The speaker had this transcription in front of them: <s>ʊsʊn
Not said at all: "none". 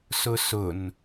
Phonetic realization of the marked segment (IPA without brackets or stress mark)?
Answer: s